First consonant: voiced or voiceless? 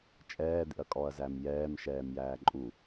voiceless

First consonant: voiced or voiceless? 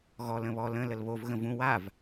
voiced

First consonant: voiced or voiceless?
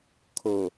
voiceless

